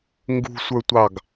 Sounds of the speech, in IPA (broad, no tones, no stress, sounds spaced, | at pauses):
ŋ ɡ ṳ sʷ ə˞ tʷ ɑ ɡ